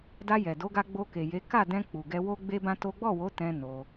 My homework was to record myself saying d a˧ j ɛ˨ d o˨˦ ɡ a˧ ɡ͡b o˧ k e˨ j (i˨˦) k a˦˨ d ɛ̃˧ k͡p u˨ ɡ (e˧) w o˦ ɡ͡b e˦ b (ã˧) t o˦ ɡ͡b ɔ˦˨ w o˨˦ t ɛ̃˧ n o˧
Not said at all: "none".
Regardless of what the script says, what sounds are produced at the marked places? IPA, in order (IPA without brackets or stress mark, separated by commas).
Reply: e˨˦, ɛ˧, ã˦